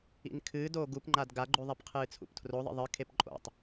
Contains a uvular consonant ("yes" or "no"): yes